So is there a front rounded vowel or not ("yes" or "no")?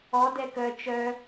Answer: yes